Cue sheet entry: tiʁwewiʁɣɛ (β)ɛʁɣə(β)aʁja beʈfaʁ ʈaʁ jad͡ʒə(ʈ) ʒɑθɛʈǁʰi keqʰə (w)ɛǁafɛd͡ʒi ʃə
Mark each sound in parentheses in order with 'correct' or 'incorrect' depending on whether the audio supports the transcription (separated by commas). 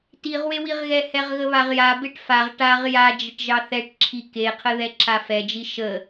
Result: incorrect, correct, correct, incorrect